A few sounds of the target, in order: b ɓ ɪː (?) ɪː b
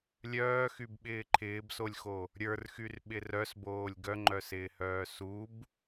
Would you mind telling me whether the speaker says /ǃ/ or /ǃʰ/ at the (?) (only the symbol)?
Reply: ǃʰ